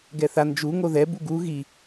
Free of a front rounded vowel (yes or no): yes